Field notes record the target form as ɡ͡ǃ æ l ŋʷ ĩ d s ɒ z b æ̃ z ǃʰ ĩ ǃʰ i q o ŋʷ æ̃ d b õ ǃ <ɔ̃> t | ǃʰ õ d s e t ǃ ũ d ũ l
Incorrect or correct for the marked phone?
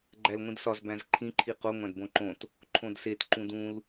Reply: incorrect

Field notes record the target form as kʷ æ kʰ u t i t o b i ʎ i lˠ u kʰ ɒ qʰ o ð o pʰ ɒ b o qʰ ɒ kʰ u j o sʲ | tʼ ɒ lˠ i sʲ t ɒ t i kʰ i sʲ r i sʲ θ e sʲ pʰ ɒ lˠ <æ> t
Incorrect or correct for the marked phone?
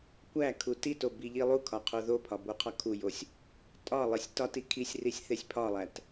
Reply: correct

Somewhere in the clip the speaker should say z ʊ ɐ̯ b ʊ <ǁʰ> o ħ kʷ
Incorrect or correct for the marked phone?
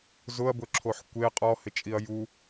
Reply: correct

